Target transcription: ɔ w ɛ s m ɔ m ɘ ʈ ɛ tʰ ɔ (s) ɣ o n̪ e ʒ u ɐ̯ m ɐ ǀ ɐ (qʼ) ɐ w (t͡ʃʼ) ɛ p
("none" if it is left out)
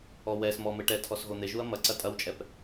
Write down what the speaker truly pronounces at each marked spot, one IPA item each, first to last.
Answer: s, tʼ, t͡ʃʼ

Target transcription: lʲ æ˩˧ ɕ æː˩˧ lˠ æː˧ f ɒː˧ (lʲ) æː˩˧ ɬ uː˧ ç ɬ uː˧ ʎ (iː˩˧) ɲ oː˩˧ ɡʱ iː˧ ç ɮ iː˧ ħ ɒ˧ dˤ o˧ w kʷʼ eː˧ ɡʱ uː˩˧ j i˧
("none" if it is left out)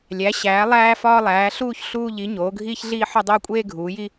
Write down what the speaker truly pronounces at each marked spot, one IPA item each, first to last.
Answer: lˠ, i˩˧

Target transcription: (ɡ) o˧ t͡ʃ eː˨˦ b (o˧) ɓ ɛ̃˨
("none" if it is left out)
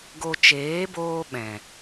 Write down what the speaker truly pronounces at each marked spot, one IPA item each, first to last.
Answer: ɡ, oː˧

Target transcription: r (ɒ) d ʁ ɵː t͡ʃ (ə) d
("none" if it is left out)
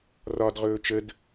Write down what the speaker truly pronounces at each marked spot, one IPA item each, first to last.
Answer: ɒ, ə

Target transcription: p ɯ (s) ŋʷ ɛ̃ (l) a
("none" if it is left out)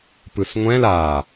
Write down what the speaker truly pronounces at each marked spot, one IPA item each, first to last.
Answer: s, l

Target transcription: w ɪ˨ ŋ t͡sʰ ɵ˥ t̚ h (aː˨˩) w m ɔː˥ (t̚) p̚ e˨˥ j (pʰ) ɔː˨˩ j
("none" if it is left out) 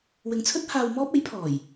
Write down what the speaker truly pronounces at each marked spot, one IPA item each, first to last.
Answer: aː˧, none, pʰ

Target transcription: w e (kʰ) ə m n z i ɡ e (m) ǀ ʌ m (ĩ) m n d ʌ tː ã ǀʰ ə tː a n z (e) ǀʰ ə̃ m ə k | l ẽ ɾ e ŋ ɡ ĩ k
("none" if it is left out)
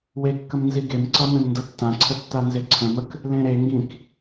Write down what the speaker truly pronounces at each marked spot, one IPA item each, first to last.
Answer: kː, m, ẽ, e

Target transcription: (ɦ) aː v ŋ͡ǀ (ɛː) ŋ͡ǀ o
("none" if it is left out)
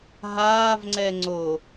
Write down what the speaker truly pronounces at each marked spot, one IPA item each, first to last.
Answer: ɦ, ɛ

